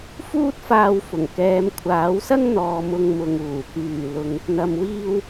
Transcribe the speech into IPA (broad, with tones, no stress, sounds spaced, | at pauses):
f uː˥ t̚ f aː˧ w f ʊ˨˩ ŋ k ɛː˨˧ m kʷʰ aː˨˥ w s ɐ˥ ŋ n̪ ɔː˨ m ʊ˧ ŋ m ʊ˨ ŋ uː˨˩ k yː˨˩ l ʊ˨˧ ŋ | n̪ ɐ˨ m w iː˧ w